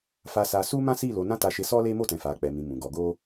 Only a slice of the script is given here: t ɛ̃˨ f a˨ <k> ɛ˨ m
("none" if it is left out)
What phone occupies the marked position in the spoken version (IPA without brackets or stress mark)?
k͡p